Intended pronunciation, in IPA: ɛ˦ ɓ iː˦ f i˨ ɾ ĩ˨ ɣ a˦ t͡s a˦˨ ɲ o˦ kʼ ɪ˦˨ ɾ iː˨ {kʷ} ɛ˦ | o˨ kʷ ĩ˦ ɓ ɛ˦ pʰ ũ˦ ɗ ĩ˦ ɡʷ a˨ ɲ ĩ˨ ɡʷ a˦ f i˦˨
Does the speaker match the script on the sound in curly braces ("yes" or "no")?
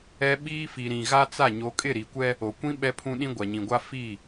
yes